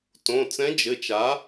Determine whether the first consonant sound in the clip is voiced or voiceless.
voiceless